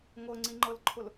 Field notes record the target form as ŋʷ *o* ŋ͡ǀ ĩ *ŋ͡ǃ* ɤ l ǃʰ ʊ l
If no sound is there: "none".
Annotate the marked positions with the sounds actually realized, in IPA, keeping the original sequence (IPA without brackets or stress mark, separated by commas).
ɤ, ŋ͡ǃ